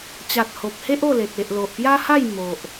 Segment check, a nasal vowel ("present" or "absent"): absent